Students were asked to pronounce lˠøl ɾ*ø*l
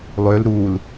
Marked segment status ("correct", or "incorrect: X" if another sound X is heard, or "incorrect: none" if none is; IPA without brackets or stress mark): incorrect: u